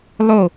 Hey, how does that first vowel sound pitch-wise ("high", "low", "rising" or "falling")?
falling